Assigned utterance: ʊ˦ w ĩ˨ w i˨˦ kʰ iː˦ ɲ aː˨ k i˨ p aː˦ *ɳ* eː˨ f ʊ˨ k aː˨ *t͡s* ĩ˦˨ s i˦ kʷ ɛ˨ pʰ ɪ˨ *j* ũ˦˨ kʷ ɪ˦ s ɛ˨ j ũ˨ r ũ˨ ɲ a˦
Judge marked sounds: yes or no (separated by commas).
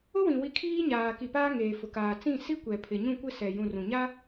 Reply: no, yes, no